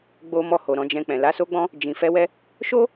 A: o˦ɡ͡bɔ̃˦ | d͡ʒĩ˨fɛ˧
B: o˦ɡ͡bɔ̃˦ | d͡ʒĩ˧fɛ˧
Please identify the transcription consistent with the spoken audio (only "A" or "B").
A